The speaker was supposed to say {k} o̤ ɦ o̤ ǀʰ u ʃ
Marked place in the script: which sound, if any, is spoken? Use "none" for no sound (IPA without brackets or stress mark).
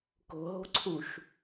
k